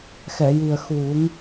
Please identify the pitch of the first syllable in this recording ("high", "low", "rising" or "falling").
low